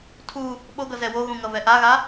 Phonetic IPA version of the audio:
tʰ u | ɓ o ɡ ʌ z ɛ w o ɣ ũ ŋ ʌ v ɛ ʔ a ɣ a

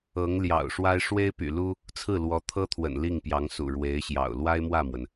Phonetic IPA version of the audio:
ɤ˧˥ ŋ l j ɑ̰˨˩ ʊ̯ ʂ w a˥ ɪ̯ ʂ w e˥ ɪ̯ p y̰˨˩ l u˥ | t͡sʰ ɹ̩˥˩ l w ɔ˧˥ t̪ʰ ɤ˥ t̪ʰ w ə̰˨˩ n l i˥˩ ŋ p j ɑ˧˥ ŋ s ṵ˨˩ ɻ w e˧˥ ɪ̯ ɕ j ɑ̰˨˩ ʊ̯ l w a˥ ɪ̯ m w ä˥˩ m w ə˩ n

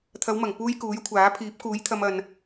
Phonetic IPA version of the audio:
t̪ʰ ɐ˨˧ w m ɐ˨˩ ŋ p uː˧ j k uː˨˥ j kʷʰ aː˨˥ pʰ iː˨˥ p̚ k uː˨˥ j t̪ʰ ɐ˧ m ɐ˨ n

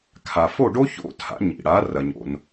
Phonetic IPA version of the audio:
kʰ a˩ f o˥˩ ɖ o˥ ç o̰˥˩ tʰ a̰˩˥ ɲ ḭ˩ ɽ a˩˥ r ɐ˩ ɲ o̰˩ n

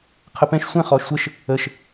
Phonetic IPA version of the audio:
qʰ ə p ɛ̃ ʃ sʷ ɛ̃ χ ɔː ʃ sʷ ə ʃ | ə ʃ

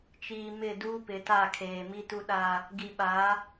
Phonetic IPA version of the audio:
t͡ʃ iː˨ m ɪ˦˨ d uː˦ p ɪ˨˦ t a˦˨ kʰ eː˨ m i˦ t u˦ ɗ a˦ | ɡ i˨ ɓ a˨˦

